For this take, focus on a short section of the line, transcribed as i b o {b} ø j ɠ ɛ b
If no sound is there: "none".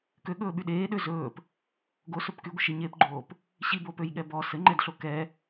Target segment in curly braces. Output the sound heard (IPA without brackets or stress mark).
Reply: p